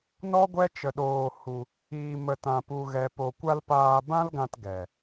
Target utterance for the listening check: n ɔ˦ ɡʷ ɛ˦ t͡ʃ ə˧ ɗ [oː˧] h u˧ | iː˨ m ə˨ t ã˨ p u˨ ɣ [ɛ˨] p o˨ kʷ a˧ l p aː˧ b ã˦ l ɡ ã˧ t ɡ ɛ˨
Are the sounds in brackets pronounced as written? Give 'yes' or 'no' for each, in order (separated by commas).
yes, yes